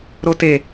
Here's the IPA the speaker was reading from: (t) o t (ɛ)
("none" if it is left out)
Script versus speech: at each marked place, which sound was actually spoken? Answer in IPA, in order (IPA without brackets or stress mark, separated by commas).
ɾ, e